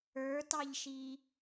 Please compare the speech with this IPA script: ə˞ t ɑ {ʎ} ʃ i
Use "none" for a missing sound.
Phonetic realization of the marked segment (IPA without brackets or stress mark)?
ʎ